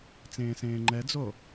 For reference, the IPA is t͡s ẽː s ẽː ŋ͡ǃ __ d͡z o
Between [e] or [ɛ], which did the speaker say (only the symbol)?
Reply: ɛ